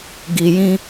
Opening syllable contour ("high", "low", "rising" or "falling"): low